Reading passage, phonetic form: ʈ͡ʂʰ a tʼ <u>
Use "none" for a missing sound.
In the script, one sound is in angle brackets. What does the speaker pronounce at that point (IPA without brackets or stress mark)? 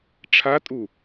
u